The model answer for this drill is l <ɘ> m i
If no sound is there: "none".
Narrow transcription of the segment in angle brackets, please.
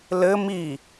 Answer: ɘ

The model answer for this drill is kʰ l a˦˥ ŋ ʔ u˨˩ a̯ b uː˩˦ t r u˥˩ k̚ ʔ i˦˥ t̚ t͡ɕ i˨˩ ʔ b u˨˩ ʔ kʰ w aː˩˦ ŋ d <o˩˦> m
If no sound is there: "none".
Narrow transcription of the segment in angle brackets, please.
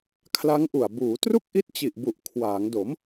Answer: o˩˦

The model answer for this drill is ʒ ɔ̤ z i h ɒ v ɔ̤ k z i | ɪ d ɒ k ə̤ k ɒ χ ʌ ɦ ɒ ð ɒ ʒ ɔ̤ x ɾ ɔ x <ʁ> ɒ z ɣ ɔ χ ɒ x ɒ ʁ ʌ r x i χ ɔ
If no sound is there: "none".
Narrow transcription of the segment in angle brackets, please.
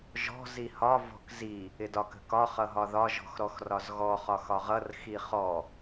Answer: r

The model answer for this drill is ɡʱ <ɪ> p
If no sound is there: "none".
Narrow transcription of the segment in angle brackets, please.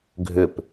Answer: ʏ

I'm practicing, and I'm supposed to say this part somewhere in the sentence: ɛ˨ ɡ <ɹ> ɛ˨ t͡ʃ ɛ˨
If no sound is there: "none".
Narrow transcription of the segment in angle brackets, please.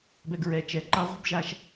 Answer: ɹ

